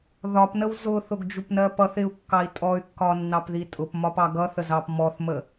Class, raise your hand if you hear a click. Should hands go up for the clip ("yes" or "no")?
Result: no